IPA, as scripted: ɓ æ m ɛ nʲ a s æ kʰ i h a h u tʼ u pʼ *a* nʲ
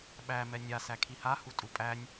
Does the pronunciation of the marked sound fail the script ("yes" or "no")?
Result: yes